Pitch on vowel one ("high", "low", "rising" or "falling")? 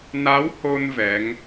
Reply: rising